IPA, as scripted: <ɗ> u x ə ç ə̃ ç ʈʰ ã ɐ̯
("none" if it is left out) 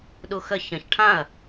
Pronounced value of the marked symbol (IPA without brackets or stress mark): ɗ